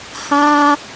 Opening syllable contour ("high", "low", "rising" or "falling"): high